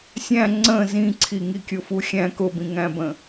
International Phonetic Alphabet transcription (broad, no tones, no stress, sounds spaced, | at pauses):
sʲ æ̃ ŋ͡ǀ ə̃ z ĩ ǀʰ i ŋ i kʲ ʊ f u xʲ æ̃ k ʊ b ĩ ŋ æ̃ b ə̃